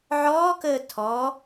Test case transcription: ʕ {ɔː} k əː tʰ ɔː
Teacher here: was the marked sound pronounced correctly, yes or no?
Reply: yes